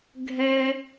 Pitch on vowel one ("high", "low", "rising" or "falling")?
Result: high